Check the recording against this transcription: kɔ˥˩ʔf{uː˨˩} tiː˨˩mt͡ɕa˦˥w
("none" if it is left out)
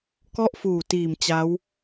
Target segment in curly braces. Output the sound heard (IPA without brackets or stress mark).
uː˨˩